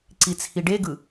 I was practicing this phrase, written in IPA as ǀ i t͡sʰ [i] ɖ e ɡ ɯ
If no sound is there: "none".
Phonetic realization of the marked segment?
i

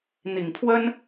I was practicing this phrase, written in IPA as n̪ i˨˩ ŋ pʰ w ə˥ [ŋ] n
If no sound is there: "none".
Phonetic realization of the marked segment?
none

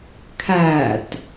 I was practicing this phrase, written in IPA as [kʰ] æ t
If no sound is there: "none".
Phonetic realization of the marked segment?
kʰ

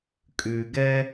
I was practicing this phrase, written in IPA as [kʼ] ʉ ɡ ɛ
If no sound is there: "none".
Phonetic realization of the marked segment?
kʼ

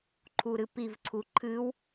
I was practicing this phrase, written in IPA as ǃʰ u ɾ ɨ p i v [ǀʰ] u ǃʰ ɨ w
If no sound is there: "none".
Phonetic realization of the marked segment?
ǀʰ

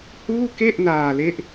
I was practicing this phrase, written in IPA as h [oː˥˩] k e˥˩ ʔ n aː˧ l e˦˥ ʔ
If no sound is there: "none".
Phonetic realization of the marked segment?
uː˥˩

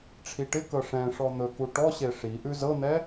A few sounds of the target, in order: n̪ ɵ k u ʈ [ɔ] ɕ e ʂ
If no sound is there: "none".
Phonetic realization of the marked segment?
ɔ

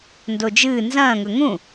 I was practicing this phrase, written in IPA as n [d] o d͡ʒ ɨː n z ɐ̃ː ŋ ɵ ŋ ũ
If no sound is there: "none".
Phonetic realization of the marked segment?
d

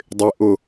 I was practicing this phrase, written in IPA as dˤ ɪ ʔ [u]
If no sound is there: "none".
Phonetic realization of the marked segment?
ʊ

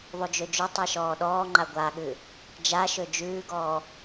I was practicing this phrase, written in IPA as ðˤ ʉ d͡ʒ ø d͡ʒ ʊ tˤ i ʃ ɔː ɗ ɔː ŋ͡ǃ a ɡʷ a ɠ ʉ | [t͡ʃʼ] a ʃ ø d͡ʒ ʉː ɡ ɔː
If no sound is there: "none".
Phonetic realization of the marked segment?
d͡ʒ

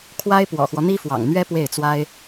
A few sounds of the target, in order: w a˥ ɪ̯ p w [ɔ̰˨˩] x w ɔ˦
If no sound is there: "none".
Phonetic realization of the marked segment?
ɔ̰˨˩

